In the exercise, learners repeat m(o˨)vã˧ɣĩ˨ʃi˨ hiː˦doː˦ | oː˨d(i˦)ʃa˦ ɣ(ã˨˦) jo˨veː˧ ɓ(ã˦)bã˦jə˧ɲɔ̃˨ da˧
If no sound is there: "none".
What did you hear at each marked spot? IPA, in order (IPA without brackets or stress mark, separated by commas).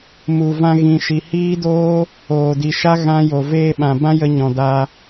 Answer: u˨, i˨, ã˦, ã˨